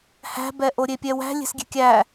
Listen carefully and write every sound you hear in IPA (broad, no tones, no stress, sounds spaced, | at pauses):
h æ̤ b ɛ ʔ o ɾʲ e pʲ ɛ w æ̤ lʲ e̤ s ɡʲ e̤ kʲ æ